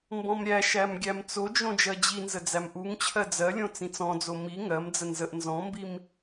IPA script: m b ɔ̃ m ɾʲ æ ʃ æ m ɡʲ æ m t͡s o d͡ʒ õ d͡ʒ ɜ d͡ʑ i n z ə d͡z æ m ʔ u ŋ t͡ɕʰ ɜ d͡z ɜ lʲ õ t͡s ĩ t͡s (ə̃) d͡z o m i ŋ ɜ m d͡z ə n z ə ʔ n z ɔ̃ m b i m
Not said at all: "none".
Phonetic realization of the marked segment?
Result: ɔ̃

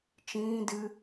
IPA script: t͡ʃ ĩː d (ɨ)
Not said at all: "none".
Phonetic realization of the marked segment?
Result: ɨ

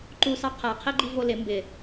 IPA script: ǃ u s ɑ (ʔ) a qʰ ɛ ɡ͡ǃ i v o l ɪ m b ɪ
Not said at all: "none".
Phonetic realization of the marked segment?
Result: qʰ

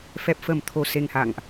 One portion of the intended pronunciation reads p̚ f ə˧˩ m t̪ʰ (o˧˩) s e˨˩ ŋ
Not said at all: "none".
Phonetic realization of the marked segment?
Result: o˧˩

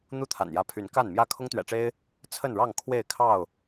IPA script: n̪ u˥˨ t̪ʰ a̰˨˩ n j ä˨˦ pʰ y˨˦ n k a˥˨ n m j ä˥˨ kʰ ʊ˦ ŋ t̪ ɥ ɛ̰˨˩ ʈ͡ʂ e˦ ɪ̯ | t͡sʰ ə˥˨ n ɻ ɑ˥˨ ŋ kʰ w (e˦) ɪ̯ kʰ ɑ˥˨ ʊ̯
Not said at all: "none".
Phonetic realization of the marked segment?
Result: e˥˨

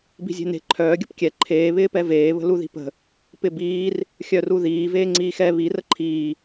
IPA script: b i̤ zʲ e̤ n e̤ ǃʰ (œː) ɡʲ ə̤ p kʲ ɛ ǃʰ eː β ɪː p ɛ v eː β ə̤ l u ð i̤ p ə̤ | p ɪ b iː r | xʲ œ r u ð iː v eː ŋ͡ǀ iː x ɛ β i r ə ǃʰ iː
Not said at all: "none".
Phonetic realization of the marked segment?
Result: œː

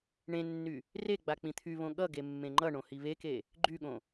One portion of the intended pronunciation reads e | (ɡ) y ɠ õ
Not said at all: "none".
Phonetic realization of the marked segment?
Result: ɡ͡ǃ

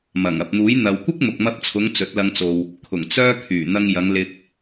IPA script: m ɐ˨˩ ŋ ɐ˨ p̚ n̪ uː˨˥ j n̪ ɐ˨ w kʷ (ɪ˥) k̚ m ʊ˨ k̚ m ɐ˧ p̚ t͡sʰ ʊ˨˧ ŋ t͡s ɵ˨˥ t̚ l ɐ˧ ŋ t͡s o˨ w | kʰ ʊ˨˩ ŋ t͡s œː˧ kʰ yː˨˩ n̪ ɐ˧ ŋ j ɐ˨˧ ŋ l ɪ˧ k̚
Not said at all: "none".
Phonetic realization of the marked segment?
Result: ɪ˥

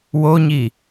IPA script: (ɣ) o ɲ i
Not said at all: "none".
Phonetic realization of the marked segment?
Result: w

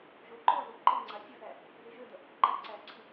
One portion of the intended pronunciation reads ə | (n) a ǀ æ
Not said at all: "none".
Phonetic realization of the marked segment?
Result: ǃ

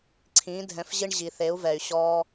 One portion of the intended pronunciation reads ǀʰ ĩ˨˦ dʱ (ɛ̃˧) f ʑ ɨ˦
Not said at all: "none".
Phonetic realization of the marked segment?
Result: ɛ̃˧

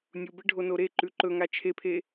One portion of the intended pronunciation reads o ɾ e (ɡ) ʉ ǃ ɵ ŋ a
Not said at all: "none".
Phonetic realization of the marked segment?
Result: ǃ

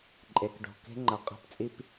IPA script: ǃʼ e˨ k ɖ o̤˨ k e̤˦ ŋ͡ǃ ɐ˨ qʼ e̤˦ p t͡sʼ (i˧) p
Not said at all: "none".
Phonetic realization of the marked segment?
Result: i˦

